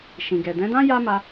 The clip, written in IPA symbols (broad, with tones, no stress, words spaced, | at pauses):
ʃĩ˨ɡɛ˨ dɛ̃˨˦dã˦ ja˦ma˧